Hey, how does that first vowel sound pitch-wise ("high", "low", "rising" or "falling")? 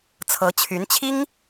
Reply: rising